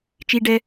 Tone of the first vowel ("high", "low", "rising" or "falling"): high